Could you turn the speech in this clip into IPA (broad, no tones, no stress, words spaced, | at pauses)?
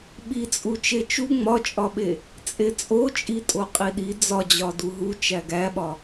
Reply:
ɓit͡sʼu t͡ʃet͡ʃu ŋ͡mɒt͡ʃʼɒɓe | t͡sʼet͡sʼot͡ʃʼitʼo qʼiɗi d͡zɒd͡ʑɒ duɦu t͡ʃæɡæɓɒ